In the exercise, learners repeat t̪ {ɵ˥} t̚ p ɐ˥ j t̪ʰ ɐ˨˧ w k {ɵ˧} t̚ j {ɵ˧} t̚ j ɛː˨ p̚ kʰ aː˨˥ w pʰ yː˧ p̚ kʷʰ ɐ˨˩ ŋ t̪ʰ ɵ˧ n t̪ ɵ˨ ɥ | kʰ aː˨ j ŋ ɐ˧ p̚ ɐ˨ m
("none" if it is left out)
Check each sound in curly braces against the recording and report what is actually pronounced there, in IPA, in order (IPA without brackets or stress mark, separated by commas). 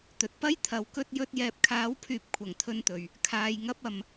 ɵ˨, ɵ˧, ɵ˧